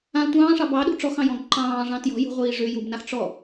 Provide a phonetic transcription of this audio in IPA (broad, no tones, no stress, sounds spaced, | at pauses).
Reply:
ã tʷ ɑ̃ː ʂ ɑ b ɑ ɗ ṳ ʈ͡ʂ ɔ x ɑ̃ j ɔ̃ ɡ ǃ ɑ̃ː ʐ ɑ̃ t j ɔ̤ j ṳ ʁʷ iː ʐ ʏ j u b n a x ʈ͡ʂ ɔ